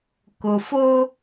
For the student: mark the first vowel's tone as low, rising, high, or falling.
low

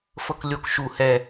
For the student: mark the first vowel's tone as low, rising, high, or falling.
high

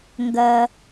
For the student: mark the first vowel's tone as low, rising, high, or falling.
low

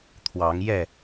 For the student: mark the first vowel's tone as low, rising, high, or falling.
rising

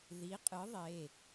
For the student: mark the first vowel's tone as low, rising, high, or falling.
rising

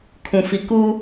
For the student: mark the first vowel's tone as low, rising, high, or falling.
low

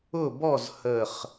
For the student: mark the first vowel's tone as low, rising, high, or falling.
falling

